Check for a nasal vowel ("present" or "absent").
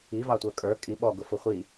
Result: absent